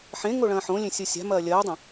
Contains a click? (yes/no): no